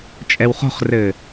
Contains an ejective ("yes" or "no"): yes